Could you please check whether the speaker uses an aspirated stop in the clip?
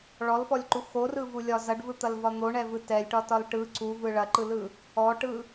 no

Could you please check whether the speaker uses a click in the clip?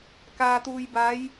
no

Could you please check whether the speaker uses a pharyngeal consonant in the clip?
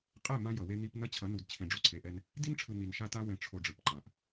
no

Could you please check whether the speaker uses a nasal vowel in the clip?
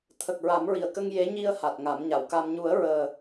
no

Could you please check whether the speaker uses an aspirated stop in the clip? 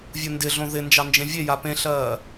no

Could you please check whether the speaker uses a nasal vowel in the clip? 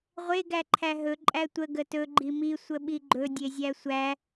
no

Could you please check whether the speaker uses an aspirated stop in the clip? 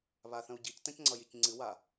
no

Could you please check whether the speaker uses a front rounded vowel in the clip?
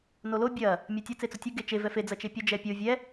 no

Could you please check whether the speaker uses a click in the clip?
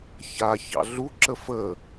yes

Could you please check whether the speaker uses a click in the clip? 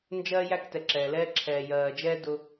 yes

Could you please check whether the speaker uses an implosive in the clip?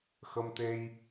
no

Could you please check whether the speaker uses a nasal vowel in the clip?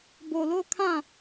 yes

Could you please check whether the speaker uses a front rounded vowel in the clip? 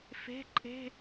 no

